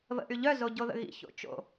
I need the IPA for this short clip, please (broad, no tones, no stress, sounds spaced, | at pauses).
β ə̰ ʔ y ʎ œ z o ɟ o ð ə̰ ɣ ḭ ç o̰ t͡ʃ o̰